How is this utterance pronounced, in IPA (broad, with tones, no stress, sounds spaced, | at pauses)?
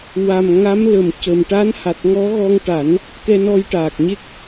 w a˨˩ m ŋ a˧˥ m l ə˨˩ m c ə˨˩ m ʈ a˧˥ n h a˨˩ t̚ ŋ ɔ˧˥ ɣ ɔ˧ ŋ ʈ a˨˩˦ n | k ɛ˧ n ɔ˧ j ʈ aː˨˩ k̚ ɲ e˦˥ k̚